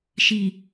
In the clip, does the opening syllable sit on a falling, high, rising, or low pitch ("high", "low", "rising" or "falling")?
low